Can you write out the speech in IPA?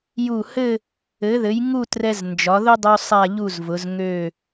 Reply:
ju˧˩hɘ˥˧ | ɘ˩˧ðɘ˩˧j ŋu˥˧trɛ˧z nd͡ʒɒ˩˧ðʊ˥dˤu˧ sˤa˥˧ʎu˥˧zvʊ˩˧z ŋø˧˩

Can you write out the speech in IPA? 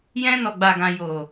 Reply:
jɛ̃˧ nɔ˨ɡ͡ba˨ɡã˨ jo˨

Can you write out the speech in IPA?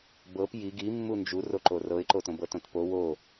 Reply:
bɤp ji ɡimːu nd͡ʒuroǃo rɤɪ̯ǃotõ bɤtõtpo wo

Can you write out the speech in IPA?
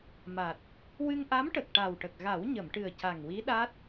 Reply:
ma˨˩t̚ | wɨ˧ŋʔa˧˥mʈə˨˩k̚ ʈa˨˩wʈə˨˩k̚ ɣa˨˩˦wɲə˨˩˨mʈɨ˨˩ə̯ ca˨˩ŋwi˧˥ɗa˦˥t̚

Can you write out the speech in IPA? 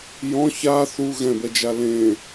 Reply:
jɔ̃ ça θu ɣɛ̃bɛd͡ʒa lẽ

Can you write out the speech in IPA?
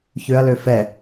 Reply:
çøɐ̯lø fɛ

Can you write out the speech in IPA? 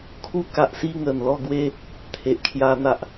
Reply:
kʰu˧ka˨ʔsi˧ ŋə˨˩nlɔ˥˧ɡwe˦ | t̪ʰe˨ʔkʰja˧ n̪a˦ʔ

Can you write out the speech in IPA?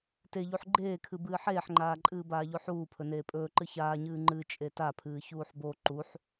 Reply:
teʎuħ ɡ͡ǃeːkʰɨ bɨːħeːħŋ͡ǃaːǃʼɨː baːʎoħuː pʰɵneːpʼɵːǃɨ çaːɲɨː ŋ͡ǃɨ t͡ʃʼetapʰɨː çuːħbo ǃuħ

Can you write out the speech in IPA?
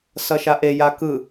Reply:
sʌʃaʔe jakɯ

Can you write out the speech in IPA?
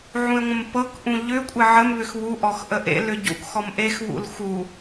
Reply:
ʕũe̯ŋʷə̃mpɤkʔũ ʎʏkʷʼɪ ʕəmβʏx βuʔɔx ʔəʔḛlʏ ɟṵkxɔm ʔexβṵl xu

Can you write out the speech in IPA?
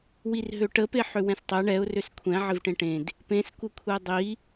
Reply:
wirɦøʈə peħʏwɛ̃stˤɛ ɳɛʊ̯ røskʷʰɛ̃ ʕɪvʈẽʈẽd | pẽs kʷəkʷʰɛdˤi

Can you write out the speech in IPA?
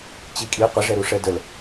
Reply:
t͡ɕikʼi qʷɘʐɛɾuʂɛ dəl

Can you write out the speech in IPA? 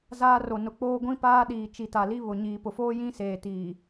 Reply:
zaː˦ro˨nʊ˨k͡poː˦ ɡʷĩ˦ paː˦ɗiː˨ t͡ʃi˨ta˨li˦ βʊ˨ ɲiː˨pʊ˨foː˦ jĩ˦seː˨ tiː˨

